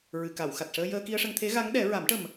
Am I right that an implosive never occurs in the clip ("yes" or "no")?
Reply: no